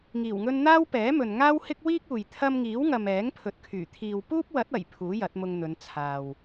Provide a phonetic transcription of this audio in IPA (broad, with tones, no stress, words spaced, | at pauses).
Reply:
ŋiː˨˩wŋɵ˧n n̪aː˥wpɛː˨˥mɵ˨n ŋaː˥whɪ˥k̚wiː˥k̚uː˨j t̪ʰɐ˧mŋiː˨˥wŋɐ˨m ɛː˨˥ŋ pʰɵ˨t̚kʰyː˨˩ t̪ʰiː˨wpuː˥p̚wɐ˨˥t̚ɐ˨˩j pʰuː˨˥jɐ˨˥t̚mʊ˧ŋn̪ɵ˨˧n t͡sʰaː˨w